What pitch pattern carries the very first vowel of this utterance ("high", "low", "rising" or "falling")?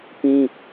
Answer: high